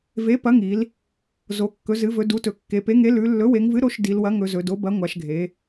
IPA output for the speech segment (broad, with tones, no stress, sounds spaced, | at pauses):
v e˩˥ p ɐ˩˥ ŋ i˩˧ l | z o˩˧ kː ɵ˩˧ z ɨ˩˧ v ɵ˩˧ d u˩˥ t ɵ˩˧ kː e˩˧ p e˩˥ ŋ e˩˥ l ʉ˩˧ lː ɵ˩˥ w e˩˧ ŋ v ɨ˩˥ ɾ o˩˥ ʃ d i˩˧ l w ɐ˩˥ ŋ ɵ˩˧ z ɵ˩˧ d o˩˥ b ɐ˩˥ ŋʷ a˩˧ ʃ ɡʱ e˩˧